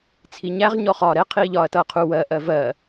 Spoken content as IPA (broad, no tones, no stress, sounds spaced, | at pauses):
t͡sʰ i ɲ æ ʁ ɲ ɔ χ ɒː ɾ ɛ qʰ iː ʎ ɒː ɐ̯ t ʌː qʰ u w ɜ ʔ ɜ v ɜ